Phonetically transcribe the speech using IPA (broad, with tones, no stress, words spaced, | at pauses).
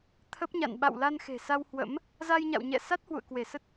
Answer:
t̪ʰə˦˥p̚ɲa̰˧˨n ɓa̰˧˨wla˧nxe̤˨˩ sa˧whwə̰˧˥m | za˧jɲa̰˧˨wɲɛ̰˧˨ sa˦˥t̚hwṵ˧˨ə̯ kwe˧˩sə˦˥t̚